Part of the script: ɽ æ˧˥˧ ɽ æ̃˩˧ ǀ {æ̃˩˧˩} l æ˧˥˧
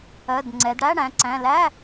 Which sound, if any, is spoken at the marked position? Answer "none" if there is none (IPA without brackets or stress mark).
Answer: æ̃˩˧˩